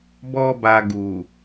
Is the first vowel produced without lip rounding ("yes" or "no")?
no